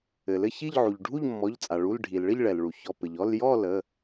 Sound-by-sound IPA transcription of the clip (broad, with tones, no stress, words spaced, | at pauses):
ɘ˩lɘ˥˨çi˥˨ʎʕu˩ʎ ɖʱu˥˨ʎmːɔ˩˧˩ʎt͡sʼa˩ ɭu˩˧˩lɖʱi˩lɭɘ˥˨ʎ ɭɛ˩lɭu˩çɔ˩˧˩pɘ˩ʎ ɔ˥˨ljɔ˥˨ lə˩˧˩